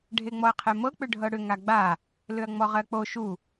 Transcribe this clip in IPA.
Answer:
ɖʱ e ŋ͡m ɔ ɐ̯ qʰ e m ɤ k͡p ʏ ɖʱ ɤ ɽ ʏ ŋ a ɡ͡b a | l ʏ ɐ̯ ŋ͡m ɔ ʁ ɜ k͡p o ʃ u

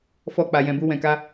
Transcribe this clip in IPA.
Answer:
f ɔ˧ k͡p a˨ j ɛ̃˨ b u˧ w ɛ̃˨ k a˧

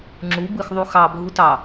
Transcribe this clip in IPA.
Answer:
ŋ͡ǁ u b ɯ x ðˤ u x ɑ bʱ u t ɑ

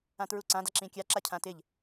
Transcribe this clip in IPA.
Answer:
ã t ɹ u ǀ ã d a ǁ ĩ kʲ a ǁ a cʰ ã t ɪ ʎ

